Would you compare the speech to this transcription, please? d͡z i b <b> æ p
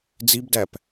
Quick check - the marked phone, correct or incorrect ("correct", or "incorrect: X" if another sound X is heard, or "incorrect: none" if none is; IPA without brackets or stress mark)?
incorrect: d